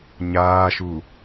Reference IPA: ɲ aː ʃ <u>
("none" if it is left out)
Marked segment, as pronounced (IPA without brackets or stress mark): u